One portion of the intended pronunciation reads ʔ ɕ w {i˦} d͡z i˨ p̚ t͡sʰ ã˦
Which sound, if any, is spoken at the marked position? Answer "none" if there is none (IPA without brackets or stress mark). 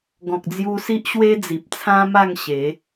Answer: e˦